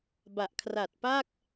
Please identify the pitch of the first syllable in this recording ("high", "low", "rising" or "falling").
low